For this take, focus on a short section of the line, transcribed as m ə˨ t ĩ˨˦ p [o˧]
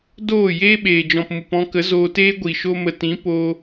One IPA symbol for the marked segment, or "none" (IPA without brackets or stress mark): o˧